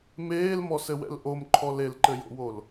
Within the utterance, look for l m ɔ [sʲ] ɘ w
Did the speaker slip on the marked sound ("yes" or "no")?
yes